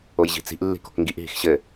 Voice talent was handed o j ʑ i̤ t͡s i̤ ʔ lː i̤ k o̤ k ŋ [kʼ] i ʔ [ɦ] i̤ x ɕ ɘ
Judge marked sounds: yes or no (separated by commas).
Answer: no, yes